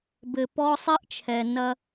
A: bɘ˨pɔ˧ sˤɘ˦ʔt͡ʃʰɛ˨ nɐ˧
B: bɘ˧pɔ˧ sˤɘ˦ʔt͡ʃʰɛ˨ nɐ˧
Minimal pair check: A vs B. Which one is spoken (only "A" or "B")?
A